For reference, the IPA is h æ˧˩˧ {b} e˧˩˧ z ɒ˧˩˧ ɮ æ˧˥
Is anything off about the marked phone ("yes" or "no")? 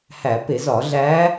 yes